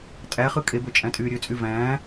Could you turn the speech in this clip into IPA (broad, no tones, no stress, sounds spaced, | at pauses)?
tʼ æ χ ɯ kʼ e b ø t͡ʃʼ æ̃ tʼ yː ɾʲ ø t͡sʼ y v æ̃ː